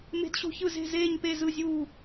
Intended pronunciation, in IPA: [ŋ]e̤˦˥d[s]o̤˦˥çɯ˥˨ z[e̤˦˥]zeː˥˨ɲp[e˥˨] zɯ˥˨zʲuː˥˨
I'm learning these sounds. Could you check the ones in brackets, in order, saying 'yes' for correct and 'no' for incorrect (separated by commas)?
no, no, no, yes